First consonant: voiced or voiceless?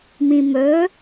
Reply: voiced